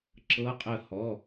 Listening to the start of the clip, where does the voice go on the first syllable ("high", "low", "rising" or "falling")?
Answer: rising